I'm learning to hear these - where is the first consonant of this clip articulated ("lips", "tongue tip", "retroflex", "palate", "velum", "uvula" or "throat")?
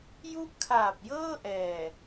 palate